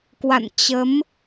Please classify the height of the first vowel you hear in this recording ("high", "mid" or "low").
low